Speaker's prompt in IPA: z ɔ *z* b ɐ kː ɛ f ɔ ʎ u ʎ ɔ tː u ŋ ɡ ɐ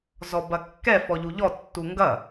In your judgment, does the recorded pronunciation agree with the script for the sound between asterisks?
no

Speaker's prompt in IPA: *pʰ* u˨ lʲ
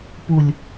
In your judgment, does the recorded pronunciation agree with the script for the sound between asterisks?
no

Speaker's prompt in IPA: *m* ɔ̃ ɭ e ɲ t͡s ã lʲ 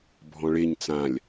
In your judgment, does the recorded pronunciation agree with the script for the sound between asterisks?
no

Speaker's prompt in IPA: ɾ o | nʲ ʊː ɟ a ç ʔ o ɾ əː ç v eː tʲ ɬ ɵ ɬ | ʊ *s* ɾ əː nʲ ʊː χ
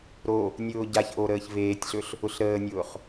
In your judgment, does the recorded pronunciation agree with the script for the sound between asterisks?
no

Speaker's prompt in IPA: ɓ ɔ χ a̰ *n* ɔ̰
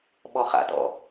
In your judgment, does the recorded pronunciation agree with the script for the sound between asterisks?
no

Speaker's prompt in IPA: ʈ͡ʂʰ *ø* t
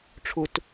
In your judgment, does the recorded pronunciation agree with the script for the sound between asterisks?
no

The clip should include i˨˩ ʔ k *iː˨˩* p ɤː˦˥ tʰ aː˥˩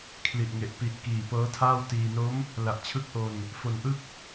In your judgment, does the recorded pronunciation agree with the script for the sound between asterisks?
yes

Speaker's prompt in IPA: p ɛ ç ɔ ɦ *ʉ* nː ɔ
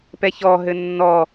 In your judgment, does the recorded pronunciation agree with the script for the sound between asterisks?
no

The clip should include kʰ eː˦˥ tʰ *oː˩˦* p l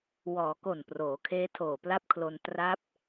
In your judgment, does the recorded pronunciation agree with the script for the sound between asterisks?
no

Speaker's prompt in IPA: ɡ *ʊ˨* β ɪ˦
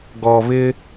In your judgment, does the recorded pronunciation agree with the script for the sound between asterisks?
no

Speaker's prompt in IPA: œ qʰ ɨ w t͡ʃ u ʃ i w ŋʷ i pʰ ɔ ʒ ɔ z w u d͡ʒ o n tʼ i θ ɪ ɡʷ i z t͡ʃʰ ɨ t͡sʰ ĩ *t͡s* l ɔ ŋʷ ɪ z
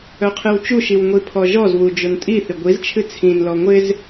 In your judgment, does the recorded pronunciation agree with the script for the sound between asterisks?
no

